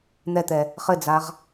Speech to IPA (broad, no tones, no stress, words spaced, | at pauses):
n̪ɛt̪ɛ | χɘd͡zaʁ